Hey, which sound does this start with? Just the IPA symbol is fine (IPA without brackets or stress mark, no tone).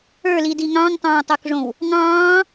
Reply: ə˞